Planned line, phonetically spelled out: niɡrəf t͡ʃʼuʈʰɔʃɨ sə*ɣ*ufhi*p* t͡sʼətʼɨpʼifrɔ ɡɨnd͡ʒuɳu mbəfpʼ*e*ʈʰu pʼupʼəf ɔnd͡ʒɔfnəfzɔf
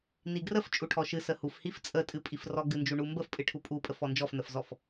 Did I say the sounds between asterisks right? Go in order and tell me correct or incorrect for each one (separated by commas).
incorrect, incorrect, incorrect